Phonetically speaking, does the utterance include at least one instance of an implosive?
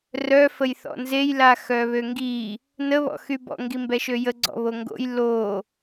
no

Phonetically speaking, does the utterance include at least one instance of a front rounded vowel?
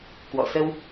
no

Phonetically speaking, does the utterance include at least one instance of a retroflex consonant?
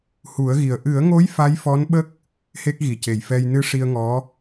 yes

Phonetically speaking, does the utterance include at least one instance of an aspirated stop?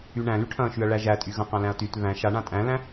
yes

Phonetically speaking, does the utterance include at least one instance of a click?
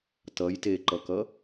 yes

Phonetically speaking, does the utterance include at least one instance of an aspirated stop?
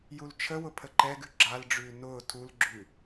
yes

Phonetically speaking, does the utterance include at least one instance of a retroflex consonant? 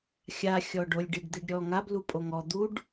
yes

